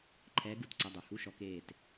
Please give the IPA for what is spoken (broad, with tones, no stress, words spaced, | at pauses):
ǃʰɛː˨˦ɡu˩˧˩tǀɛ˩˧˩dˤø˩ hu˧˥˧ʃɔ˨˦ keː˧˩t